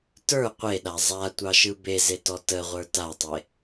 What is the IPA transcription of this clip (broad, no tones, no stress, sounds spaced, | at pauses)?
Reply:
t ə˞ qʷ e ɗ a zˤ a tʷ ɑ ʃ ɯ b e z e t ɔ t ə ʁʷ ə˞ t a tˤ e